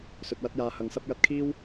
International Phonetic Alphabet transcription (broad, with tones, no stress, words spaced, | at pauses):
sɵ˨t̚wɐ˥t̚jaː˧ hɐ˨ŋsɐ˥p̚ jɐ˧t̚kʰiː˥w